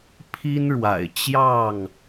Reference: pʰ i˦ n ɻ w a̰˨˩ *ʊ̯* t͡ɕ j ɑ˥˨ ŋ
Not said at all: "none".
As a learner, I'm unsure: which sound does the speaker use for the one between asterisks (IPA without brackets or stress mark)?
ɪ̯